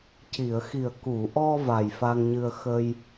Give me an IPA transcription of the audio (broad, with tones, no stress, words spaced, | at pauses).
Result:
ci˨˩˨ə̯xi˨˩ə̯ ku˨˩˨ʔɔ˧ va˨˩jfa˧ŋɲɨ˧ə̯ xə˧j